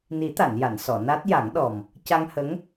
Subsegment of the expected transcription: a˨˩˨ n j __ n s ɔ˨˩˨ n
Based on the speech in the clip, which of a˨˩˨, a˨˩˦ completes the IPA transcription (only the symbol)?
a˨˩˨